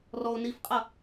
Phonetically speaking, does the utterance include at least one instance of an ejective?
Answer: yes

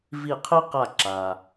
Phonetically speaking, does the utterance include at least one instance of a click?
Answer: yes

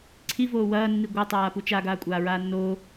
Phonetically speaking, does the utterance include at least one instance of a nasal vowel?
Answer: no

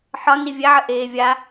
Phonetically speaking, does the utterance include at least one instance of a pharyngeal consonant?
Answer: yes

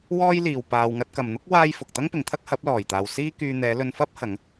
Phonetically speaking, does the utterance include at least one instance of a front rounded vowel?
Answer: yes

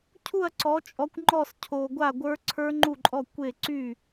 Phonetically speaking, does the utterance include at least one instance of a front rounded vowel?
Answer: yes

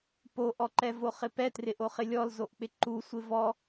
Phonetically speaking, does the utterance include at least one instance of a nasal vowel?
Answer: no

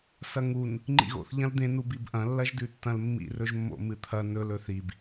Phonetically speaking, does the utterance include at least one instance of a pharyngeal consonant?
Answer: no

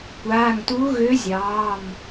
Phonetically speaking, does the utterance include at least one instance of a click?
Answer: no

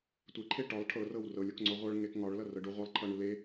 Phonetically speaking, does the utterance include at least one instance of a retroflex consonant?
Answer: yes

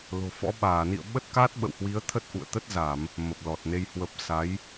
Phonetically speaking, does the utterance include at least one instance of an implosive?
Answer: yes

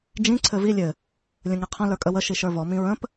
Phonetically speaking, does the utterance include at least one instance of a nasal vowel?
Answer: yes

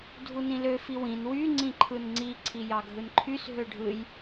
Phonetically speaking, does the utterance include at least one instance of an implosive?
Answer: no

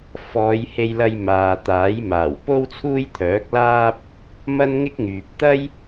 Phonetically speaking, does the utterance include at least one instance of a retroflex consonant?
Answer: no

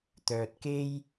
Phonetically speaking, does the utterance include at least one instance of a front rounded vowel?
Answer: yes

